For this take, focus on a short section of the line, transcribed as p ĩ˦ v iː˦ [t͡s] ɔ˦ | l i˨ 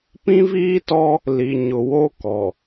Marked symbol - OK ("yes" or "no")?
no